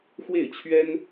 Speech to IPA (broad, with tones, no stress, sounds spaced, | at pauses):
x w e˥˩ ɪ̯ t͡ɕʰ ɥ ɛ˥ n